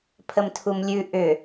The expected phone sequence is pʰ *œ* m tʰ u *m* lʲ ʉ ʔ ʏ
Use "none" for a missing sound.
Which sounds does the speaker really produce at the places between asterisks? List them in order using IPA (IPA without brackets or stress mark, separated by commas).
ə, m